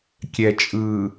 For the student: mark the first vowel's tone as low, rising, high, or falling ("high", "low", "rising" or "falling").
low